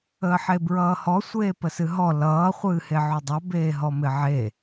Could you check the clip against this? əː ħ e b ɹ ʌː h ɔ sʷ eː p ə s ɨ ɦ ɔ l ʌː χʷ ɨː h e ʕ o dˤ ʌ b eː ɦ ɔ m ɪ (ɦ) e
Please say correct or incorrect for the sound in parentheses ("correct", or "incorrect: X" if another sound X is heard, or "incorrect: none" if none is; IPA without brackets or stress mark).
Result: incorrect: ʕ